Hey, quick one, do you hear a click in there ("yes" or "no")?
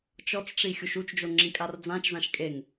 yes